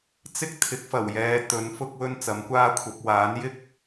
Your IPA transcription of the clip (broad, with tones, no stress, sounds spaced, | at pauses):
t͡s ɪ˥ k̚ t̪ʰ ɪ˨˥ k̚ f ɐ˨˩ w j ɛː˨˧ t̪ ɵ˨˥ n f ʊ˥ k̚ w ɵ˥ n t͡s ɐ˨˥ m kʷ aː˥ kʷʰ ɐ˨˥ p̚ w aː˨˥ n j ɪ˥ k̚